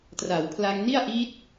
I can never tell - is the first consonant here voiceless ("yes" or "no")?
yes